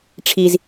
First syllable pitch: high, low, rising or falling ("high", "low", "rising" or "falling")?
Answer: low